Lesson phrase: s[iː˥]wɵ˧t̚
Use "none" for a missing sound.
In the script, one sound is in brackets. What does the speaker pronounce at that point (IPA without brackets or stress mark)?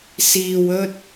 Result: iː˨